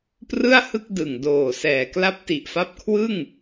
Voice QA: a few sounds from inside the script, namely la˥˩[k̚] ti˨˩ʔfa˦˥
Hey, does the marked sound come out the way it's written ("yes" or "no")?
no